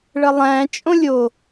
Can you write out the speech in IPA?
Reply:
ɭəlˠæ̃ t͡ʃʼõlʲo

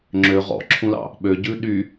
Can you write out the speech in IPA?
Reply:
ŋ͡ǁø ʁɔ̰ǁʰũlɑ̰ | ɓøɟʉ ɗy

